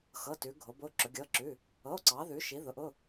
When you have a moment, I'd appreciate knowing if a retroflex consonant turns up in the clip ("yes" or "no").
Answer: no